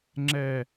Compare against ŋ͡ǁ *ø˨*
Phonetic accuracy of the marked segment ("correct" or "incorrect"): incorrect